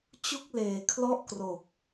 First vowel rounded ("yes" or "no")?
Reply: yes